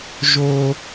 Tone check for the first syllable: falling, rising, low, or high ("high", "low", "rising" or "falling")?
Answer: high